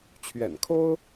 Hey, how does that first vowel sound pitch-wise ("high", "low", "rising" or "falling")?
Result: low